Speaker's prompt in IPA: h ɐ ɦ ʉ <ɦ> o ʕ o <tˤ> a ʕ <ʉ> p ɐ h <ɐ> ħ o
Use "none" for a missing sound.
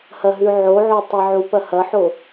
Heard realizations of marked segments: ʕ, tˤ, u, ɐ

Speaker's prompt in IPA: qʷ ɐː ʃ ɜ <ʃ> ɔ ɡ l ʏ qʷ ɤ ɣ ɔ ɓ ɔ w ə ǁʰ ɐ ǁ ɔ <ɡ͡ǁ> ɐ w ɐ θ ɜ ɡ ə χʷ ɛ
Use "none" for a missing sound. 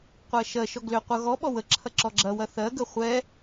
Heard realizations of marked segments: ʃ, ɡ͡ǁ

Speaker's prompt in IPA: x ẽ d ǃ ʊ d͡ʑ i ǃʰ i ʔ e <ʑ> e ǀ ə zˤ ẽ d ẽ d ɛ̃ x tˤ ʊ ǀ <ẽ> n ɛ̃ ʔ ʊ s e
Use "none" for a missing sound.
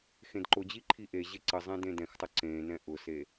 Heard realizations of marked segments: ʑ, ẽ

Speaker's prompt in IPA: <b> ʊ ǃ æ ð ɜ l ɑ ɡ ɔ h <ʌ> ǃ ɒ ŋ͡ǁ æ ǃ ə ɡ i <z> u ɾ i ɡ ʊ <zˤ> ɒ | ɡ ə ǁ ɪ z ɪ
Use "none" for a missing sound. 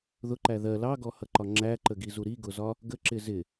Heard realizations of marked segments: ð, ʌ, z, z

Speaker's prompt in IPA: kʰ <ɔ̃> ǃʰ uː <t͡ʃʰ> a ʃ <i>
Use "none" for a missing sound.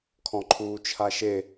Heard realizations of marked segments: ɔ̃, t͡ʃʰ, e

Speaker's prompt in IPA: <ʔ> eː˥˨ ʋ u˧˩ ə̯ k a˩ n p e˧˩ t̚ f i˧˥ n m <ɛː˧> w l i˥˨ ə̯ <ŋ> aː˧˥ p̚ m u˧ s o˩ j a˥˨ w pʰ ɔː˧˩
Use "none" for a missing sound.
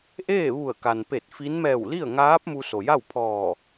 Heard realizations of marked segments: ʔ, ɛː˧˩, ŋ

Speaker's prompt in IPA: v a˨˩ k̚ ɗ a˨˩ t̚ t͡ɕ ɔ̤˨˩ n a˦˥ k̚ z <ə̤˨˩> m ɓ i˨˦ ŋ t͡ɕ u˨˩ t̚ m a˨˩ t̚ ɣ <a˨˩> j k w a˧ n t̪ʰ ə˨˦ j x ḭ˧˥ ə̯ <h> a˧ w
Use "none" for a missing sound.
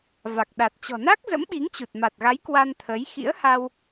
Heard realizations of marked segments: ə̰˧˥, a˨˦, h

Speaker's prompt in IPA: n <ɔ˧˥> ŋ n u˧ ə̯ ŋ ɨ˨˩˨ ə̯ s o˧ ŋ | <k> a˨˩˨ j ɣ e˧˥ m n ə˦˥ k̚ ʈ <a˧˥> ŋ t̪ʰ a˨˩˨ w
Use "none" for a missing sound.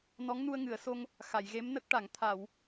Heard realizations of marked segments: ɔ˧˥, x, a˨˩˨

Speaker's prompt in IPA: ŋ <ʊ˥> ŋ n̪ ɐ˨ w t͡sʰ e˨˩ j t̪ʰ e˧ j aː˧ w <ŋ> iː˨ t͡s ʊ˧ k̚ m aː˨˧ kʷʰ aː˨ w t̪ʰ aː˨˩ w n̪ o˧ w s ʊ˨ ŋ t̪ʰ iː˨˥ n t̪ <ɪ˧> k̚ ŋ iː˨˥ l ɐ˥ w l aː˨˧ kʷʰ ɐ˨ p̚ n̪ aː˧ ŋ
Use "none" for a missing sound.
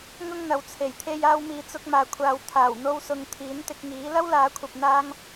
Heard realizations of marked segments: ʊ˥, m, ɪ˧

